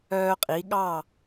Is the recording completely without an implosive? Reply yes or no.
no